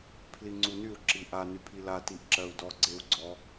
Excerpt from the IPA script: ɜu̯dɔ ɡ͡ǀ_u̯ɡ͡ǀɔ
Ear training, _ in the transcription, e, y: e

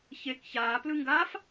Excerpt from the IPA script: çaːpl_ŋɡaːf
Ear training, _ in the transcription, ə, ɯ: ɯ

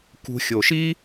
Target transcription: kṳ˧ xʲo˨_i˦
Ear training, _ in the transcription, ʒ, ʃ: ʃ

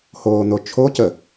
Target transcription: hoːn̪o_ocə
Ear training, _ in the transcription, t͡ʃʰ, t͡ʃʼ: t͡ʃʰ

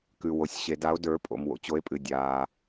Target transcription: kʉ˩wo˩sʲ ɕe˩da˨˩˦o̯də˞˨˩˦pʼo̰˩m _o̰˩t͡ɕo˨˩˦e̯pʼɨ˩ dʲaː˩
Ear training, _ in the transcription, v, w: w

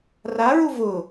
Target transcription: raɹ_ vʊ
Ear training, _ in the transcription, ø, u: u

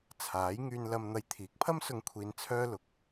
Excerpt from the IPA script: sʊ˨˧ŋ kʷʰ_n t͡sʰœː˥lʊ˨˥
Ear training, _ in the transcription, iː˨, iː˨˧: iː˨˧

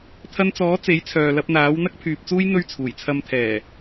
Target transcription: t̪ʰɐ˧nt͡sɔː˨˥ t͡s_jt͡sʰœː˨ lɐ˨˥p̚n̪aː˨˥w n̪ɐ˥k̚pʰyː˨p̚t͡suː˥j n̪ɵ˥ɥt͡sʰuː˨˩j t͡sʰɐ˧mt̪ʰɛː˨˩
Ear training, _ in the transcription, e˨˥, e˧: e˨˥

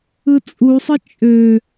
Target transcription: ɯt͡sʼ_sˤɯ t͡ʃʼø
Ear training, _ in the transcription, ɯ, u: u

